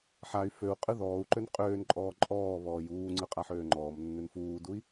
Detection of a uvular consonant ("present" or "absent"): present